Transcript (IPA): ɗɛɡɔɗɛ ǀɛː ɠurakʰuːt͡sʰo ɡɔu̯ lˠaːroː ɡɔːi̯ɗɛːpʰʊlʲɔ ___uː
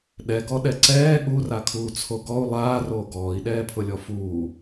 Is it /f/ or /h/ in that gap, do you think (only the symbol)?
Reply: f